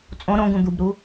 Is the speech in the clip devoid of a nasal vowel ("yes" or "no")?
no